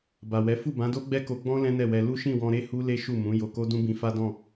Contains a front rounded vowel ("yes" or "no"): no